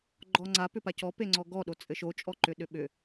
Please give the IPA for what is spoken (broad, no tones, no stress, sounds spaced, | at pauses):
ɡ͡ǃ ɔ ŋ͡ǀ a p ʏ p a c ɔ p e ŋ͡ǀ ɔ ɡ ɔ ɗ o t͡sʼ ɘ ʃ o t͡ʃʼ ɔ ǃ ʏ ɗ ʏ ɓ ʏ